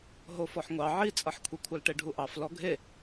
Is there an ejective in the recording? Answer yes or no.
yes